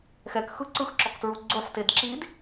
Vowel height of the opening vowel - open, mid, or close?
mid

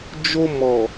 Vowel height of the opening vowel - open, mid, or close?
mid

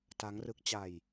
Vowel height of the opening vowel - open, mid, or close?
open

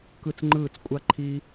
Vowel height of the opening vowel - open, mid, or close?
close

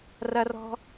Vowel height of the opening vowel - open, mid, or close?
open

